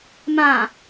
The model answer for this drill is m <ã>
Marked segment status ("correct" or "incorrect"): correct